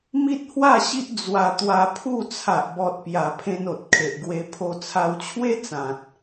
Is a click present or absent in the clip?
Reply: absent